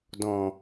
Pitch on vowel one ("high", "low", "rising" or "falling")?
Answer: low